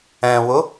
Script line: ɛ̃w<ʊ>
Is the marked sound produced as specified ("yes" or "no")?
yes